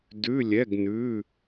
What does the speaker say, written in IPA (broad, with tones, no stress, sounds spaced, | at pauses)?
d ʉ˧˥˧ lʲ ɛ˧˥˧ ɡ n ʉ˧˥˧